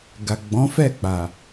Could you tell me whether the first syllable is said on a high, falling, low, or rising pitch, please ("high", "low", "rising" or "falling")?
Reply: low